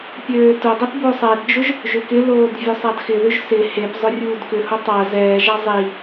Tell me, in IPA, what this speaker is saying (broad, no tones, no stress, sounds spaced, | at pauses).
pʲ øː t ʊ dˤ i p b o sˤ ɛ d d͡ʒ ʊ ʒ | ʒ ʏ k ɪ l oː d vʲ ø sˤ a d x ɪ ð ʏ ʒ s ɪ h e p zˤ ʊ rʲ uː d k ʏ h ʊ tˤ a z ɛː ʒ a zˤ i